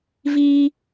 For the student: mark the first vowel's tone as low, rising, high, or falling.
high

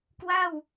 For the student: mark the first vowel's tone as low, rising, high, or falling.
falling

